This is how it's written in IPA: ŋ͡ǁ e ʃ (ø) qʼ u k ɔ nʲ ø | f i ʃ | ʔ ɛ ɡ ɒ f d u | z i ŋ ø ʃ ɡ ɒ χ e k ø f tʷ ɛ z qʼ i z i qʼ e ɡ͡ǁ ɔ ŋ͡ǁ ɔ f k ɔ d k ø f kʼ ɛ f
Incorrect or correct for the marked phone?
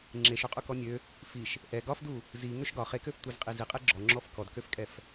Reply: correct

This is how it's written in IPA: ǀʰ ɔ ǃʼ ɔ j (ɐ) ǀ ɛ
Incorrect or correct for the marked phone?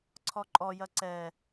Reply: correct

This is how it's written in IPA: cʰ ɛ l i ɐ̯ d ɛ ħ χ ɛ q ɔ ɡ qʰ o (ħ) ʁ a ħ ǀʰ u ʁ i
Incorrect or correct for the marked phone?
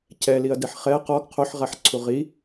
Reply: correct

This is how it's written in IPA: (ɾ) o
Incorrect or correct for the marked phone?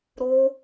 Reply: correct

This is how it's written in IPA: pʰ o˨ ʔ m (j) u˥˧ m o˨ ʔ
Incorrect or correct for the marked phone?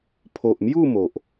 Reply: correct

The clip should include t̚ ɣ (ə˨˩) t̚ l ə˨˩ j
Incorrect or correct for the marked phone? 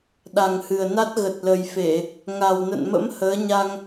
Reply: correct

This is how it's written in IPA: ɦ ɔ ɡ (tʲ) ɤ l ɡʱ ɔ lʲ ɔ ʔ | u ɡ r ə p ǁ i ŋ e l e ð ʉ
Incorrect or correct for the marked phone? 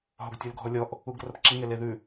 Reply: correct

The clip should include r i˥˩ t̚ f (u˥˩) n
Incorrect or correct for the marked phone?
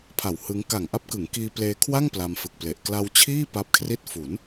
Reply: incorrect: u˩˦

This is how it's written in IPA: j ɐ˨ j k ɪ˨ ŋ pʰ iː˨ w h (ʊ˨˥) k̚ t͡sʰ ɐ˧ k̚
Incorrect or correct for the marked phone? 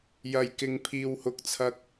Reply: incorrect: ʊ˨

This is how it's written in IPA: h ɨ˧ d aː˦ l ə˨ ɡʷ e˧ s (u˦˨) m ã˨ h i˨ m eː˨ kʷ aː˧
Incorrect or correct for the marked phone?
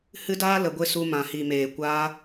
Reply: incorrect: u˧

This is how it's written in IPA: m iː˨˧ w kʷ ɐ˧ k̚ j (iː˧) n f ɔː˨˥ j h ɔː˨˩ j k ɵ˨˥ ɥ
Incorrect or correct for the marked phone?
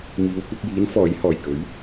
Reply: incorrect: iː˨˥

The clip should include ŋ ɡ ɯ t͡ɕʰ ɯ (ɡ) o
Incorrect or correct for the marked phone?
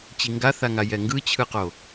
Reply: incorrect: q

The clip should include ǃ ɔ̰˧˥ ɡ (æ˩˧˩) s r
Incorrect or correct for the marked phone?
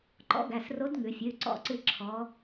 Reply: correct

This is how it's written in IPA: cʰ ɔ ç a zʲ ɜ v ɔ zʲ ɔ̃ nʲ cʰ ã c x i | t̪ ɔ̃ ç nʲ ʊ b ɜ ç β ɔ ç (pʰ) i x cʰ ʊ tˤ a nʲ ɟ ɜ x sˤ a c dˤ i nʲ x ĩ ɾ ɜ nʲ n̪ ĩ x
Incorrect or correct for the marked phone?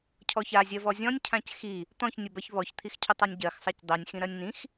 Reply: incorrect: t̪ʰ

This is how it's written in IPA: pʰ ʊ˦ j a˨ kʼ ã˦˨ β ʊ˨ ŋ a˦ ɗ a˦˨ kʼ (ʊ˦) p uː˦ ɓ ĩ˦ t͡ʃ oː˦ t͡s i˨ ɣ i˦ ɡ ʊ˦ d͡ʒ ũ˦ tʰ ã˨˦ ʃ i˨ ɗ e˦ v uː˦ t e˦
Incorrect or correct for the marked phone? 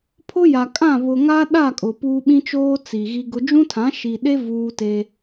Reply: incorrect: ʊ˨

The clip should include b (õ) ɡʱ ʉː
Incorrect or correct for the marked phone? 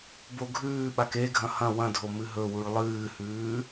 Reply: incorrect: o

